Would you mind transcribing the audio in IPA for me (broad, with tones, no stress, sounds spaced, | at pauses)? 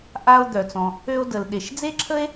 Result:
ʔ a˥ o̯ d̪ œ˩ t͡s ɔ̃˩ | ø˥ o̯ d ə˩ l ɗ e˩ ʃ d͡z e˥ ǁʰ ə˥ e̯